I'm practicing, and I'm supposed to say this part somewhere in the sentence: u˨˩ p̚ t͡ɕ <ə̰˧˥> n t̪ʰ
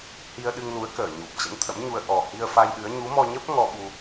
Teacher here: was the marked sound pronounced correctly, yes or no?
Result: yes